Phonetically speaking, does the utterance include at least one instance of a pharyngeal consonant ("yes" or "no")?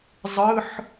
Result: yes